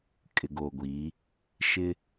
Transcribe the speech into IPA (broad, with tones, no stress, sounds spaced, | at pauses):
kʼ ɪ˨ ɡ o˨ ɡʷ iː˨˦ | ʃ ɪ˦